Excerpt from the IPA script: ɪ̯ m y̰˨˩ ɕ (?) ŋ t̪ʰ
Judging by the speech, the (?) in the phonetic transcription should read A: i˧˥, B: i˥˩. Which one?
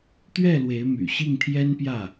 B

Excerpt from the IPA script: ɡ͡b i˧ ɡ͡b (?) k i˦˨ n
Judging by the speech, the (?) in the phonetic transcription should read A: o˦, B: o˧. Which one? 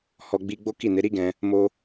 A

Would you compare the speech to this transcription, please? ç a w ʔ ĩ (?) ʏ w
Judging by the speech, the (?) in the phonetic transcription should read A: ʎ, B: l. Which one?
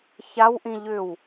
A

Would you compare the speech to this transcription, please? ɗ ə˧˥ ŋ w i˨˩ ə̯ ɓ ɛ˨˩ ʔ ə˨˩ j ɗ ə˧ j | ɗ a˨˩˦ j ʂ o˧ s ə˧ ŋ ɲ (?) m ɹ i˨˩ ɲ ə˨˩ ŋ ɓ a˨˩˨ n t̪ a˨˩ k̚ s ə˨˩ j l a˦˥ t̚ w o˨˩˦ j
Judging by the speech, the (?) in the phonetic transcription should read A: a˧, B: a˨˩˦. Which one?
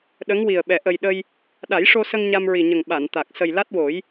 A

